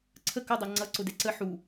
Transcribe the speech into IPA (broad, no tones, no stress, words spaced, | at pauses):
ǀʰə kʊdˤɑ ŋ͡ǀʌǀʊdɛ ǀə ħu